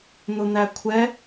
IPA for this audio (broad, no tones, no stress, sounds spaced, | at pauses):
n̪ ʊ n̪ æ kʷʰ ɛ